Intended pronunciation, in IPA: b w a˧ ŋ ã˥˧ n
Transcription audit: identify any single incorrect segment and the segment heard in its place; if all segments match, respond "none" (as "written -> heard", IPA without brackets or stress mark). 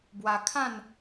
ŋ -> kʰ